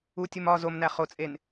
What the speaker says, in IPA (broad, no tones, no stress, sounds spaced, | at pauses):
u tʲ u m ɒ z o m n æ χ o t͡sʼ e n